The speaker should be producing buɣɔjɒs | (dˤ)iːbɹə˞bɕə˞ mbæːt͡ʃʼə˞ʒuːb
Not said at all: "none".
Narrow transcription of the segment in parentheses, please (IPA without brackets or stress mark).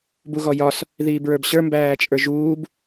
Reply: ð